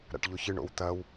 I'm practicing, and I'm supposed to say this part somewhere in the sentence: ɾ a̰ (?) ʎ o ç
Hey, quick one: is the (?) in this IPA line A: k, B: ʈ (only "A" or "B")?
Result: B